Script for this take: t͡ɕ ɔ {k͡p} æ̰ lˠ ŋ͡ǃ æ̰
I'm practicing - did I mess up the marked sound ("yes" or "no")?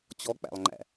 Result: no